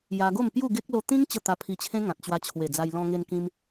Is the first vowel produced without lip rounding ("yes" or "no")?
yes